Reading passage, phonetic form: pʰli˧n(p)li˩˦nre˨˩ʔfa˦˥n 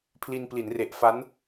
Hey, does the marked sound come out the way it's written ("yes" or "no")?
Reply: yes